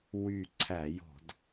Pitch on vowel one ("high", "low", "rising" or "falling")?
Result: low